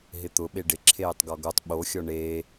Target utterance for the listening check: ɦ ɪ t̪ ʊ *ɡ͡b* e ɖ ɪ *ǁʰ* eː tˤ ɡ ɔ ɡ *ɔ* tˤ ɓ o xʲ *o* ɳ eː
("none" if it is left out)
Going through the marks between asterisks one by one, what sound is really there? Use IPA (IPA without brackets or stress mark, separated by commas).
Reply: ɓ, ǁʰ, o, ɔ